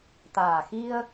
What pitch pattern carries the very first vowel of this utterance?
low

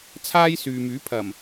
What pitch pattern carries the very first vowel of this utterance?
high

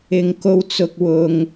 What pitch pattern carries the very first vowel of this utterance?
low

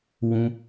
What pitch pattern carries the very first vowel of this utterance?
high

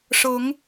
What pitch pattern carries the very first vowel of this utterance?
rising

